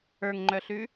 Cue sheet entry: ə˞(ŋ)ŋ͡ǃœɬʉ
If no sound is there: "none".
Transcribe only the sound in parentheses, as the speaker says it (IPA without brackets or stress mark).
ŋ